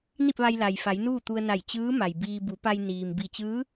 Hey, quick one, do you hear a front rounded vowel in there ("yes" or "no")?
no